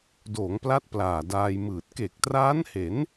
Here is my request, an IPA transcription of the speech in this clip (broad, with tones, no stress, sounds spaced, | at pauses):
d oː˩˦ ŋ p l a˦˥ t̚ p l aː˨˩ d aː˧ j m ɯː˨˩ t̚ k e˨˩ k̚ t r aː˦˥ n h e˩˦ n